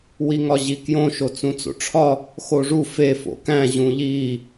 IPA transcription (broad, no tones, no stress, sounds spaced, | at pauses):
w i ŋ ɒ ʑ i k j õ ʃ o t͡s ũ t͡s o̰ ʈ͡ʂʰ ɒ | x o ʐ u f e f o̰ k æ̃ ʑ ũ ʎ i